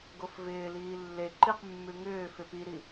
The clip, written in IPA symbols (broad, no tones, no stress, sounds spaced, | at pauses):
ɡ o f v ɪː l iː lː e ǃ i q mː ʉ ŋ ʏː f ɪ p i ɾ i